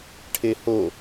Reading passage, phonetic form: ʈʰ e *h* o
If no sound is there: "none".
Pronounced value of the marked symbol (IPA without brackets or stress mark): h